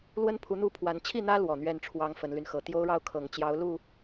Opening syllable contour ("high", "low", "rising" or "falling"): high